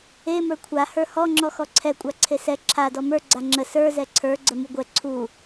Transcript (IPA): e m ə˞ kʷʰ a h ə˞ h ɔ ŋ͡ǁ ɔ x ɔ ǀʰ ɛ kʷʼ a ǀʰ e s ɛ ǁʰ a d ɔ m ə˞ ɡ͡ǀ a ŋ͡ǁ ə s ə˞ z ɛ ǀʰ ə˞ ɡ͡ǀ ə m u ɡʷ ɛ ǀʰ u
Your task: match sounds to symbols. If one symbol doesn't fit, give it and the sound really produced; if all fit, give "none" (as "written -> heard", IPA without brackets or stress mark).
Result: none